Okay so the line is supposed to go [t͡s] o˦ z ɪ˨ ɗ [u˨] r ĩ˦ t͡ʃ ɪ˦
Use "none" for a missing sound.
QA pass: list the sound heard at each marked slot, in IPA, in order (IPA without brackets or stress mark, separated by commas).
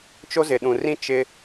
t͡ʃ, ũ˨